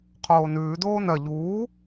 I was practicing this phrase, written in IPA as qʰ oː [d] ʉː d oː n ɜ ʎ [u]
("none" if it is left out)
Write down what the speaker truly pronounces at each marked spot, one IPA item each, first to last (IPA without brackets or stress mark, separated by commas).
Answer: n, uː